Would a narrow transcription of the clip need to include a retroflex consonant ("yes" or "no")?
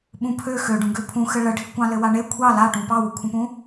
yes